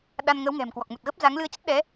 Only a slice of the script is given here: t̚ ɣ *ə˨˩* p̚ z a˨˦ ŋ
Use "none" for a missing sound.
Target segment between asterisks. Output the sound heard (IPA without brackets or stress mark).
ə˦˥